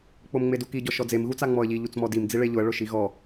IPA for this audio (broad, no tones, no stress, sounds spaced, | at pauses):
k͡p o m ŋ͡m e d u k i ɟ ɔ ʃ ɔ d͡z e m ɣ u t͡s a ŋ͡m ɔ ə̯ ʎ i ʎ u t͡s m ɔ d i m d͡z i ɭ e ʎ ʊ ə̯ ɭ ʊ ʃ i ɣ ɔ